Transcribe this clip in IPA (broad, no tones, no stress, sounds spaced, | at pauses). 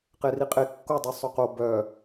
q e r i qʼ e kː o dˤ u sˤ œ q o b œ